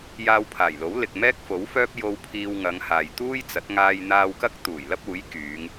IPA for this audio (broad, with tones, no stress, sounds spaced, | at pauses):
j aː˧ w pʰ aː˨˩ j l o˨˥ w l ɪ˨ k̚ m ɛː˥ k̚ f o˨˥ w f œː˥ p̚ j o˧ w pʰ iː˧ w ŋ ɐ˨˧ ŋ h aː˨ j t̪ uː˥ j t͡s ɐ˨˥ t̚ ŋ aː˧ j n̪ aː˧ w k ɐ˥ k̚ t̪ uː˨˩ j l ɐ˥ p̚ uː˨˥ j k yː˨˧ ŋ